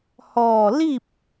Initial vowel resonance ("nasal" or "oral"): oral